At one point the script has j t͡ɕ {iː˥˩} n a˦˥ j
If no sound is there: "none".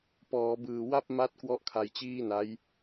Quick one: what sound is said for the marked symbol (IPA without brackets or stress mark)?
iː˥˩